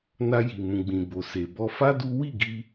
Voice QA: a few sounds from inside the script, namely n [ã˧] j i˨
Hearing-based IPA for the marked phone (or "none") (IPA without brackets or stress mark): a˧